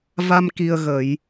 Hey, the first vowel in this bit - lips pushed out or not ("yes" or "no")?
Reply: no